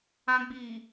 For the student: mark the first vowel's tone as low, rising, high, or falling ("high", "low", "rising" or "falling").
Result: high